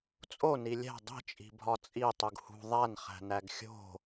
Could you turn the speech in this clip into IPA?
t͡sʼ o n i lʲ æ̤ dˤ i̤ t͡ʃʼ i̤ bʱ ɒ t͡sʼ i tˤ u ɡ h ṳ ðˤ æ n χ æ̤ n æ ɡ xʲ o̤

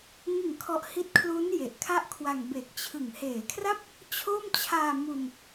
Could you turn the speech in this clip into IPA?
ŋ ɯ˨˩ ŋ kʰ ɔ˨˩ ʔ h i˦˥ t̚ kʰ l u˦˥ n j e˨˩ ʔ kʰ a˥˩ ʔ kʰ w a˧ ŋ b e˨˩ k̚ t͡ɕʰ ɯ˨˩ ŋ h eː˩˦ kʰ r a˥˩ p̚ | t͡ɕʰ o˥˩ m t͡ɕʰ aː˧ m u˧ n

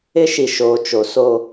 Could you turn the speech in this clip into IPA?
ɪ˦ ʃ i˨ ʃ oː˨ t͡ʃ o˨ s o˦

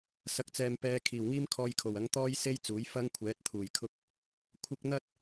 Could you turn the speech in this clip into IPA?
s ɐ˨ k̚ t͡s ɛː˨ m p ɛː˨˧ kʰ iː˨˩ w ŋ iː˥ m kʰ ɔː˧ j kʰ o˨˩ w ɐ˨˥ ŋ t̪ ɔː˥ j s e˥ j t͡s uː˨˥ j f ɐ˥ ŋ kʷʰ ɛː˨˥ t̚ t̪ʰ uː˨˩ j kʰ ʊ˥ k̚ | kʷʰ ɪ˨ k̚ n̪ ɐ˧ t̚

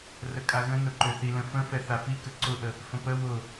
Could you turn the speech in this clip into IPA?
r ə kʼ a ɣ ə̃ n ʊ ǃ ø θ i l ə̃ f ə̃ f ɛ θ a f i k ə ǀ ʊ ʔ ə | f ə̃ p ə w ʊ

